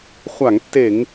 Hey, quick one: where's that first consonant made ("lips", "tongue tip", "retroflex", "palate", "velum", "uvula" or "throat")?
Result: uvula